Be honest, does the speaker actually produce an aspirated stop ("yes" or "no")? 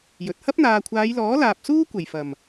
yes